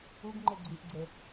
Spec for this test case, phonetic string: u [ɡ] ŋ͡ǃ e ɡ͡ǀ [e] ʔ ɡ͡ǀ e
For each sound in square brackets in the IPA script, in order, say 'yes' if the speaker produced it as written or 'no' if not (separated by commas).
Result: yes, no